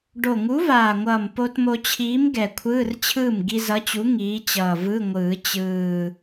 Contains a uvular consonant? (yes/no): no